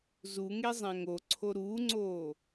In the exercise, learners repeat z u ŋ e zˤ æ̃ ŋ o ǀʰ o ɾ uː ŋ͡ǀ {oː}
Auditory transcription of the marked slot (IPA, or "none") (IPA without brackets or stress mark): oː